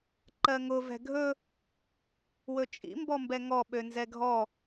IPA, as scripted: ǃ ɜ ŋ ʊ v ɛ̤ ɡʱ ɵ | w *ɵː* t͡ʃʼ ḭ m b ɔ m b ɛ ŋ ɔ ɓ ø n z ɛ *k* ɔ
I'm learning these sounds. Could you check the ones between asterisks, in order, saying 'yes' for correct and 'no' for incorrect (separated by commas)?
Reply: no, no